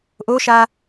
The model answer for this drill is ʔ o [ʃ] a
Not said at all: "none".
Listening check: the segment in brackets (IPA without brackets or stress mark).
ʃ